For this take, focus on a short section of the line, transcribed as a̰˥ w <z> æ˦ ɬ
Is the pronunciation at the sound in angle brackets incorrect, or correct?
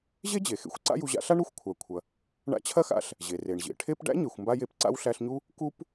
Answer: incorrect: ɬ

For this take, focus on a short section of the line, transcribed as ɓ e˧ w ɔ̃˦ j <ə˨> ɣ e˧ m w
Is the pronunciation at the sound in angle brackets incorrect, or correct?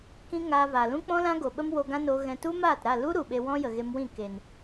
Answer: correct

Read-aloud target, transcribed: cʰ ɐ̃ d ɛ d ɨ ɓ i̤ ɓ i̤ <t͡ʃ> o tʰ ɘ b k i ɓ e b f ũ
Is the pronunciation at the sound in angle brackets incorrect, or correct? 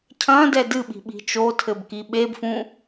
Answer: correct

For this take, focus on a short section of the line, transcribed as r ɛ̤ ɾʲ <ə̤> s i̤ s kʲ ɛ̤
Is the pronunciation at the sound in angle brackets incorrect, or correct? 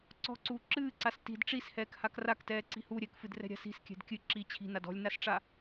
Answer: incorrect: a̤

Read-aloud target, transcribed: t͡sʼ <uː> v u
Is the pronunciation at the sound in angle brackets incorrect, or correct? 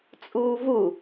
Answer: correct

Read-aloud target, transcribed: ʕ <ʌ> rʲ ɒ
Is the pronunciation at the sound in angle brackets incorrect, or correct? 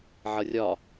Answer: correct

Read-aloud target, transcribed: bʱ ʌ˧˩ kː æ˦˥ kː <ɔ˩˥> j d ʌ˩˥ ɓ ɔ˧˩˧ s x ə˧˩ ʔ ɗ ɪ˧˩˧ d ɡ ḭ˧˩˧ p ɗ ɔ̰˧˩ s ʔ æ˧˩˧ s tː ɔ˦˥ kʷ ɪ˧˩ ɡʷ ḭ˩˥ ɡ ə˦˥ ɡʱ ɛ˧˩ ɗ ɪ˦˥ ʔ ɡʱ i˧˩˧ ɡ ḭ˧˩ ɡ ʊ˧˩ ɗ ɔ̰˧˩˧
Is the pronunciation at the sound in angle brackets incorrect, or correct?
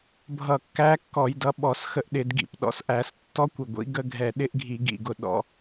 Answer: incorrect: ɔ˧˩˧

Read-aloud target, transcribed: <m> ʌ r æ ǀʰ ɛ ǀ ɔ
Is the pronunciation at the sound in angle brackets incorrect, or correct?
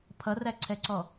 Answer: incorrect: pʰ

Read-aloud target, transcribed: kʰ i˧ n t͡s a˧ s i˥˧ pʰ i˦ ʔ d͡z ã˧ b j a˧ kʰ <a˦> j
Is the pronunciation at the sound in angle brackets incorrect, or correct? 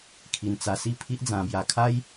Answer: correct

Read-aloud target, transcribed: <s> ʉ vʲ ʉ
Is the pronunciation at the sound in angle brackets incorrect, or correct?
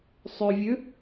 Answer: incorrect: sˤ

